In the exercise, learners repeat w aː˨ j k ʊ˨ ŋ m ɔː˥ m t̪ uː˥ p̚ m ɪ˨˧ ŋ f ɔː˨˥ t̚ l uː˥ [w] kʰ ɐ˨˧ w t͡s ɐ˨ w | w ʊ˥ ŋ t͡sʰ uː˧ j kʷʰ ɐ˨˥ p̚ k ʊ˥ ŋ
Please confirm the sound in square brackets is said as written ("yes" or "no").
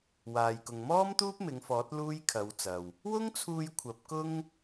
no